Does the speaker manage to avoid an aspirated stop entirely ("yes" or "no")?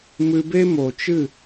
yes